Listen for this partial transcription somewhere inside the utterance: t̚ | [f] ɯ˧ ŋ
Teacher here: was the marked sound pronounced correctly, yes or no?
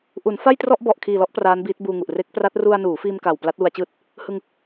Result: no